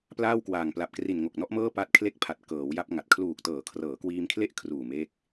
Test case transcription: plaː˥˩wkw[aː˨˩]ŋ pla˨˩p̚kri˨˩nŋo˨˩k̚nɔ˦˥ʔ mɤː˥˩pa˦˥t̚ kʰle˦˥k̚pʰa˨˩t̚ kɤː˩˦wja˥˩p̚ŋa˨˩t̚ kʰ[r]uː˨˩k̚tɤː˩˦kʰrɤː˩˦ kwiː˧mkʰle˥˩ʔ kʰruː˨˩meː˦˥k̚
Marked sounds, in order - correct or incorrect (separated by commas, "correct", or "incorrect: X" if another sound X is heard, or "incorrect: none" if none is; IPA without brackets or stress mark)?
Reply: correct, incorrect: l